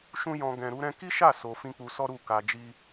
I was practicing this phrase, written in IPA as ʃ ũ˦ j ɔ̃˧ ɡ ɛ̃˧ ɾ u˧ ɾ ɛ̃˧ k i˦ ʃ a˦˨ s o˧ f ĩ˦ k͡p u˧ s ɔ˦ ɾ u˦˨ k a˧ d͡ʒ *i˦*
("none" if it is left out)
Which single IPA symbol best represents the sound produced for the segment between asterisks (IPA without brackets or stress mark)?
i˦